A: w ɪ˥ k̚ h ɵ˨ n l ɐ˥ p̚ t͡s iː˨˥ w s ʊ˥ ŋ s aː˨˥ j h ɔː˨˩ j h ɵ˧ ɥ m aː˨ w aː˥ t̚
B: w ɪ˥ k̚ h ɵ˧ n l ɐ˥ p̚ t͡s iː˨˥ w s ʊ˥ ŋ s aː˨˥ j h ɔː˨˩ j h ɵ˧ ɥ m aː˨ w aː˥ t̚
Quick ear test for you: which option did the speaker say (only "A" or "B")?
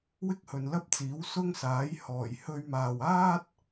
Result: A